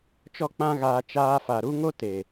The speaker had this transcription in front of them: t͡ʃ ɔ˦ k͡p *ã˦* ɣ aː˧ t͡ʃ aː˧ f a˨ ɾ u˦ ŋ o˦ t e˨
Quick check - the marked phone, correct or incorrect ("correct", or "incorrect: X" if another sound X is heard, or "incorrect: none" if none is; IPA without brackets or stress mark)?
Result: correct